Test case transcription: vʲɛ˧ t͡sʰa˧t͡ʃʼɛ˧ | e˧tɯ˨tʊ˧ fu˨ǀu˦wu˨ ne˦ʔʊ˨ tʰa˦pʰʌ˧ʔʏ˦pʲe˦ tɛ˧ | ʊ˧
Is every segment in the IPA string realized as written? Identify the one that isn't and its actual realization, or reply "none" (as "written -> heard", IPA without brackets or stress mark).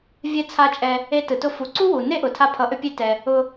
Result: none